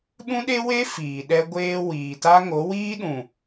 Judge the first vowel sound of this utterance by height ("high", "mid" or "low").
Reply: high